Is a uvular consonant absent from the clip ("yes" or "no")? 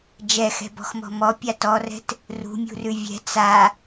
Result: yes